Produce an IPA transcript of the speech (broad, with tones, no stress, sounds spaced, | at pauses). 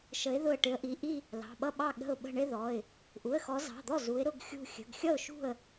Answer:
ʃ ə˨˦ ɪ̯ ð ʊ˧˩ ə̯ ʈ ɪ˨˦ ə̯ ʔ i˩˧˩ ʔ i˥˧ | l ɑ̤˩˧˩ ɓ ʌ˥˧ ɓ ɑ˥˩ ɠ ə̤˧˩ ʊ̯ ɓ ə̤˧˩ ɳ ɪ˥˧ ð ɔ˩˧˩ ɪ̯ | ʔ u˩˧˩ ə̯ x ɔ˨˦ z ɑ̤˩˧˩ d̪ ɔ˥˩ z u˨˦ ɪ̯ ɾ ʊ˥˧ ɡ xʲ ṳ˧˩ xʲ ə̤˩˧˩ ɡ xʲ ʌ˥˩ ʊ̯ ʃ ṳ˥˩ ə̯